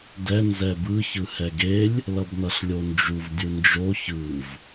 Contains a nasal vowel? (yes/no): no